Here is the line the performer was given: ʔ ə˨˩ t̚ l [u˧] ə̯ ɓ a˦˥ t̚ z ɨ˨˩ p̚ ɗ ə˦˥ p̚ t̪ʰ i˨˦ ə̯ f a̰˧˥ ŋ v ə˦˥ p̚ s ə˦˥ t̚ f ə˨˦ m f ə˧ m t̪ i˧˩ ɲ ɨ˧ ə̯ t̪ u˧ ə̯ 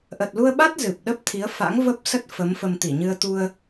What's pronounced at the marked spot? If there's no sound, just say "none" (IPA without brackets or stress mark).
u˧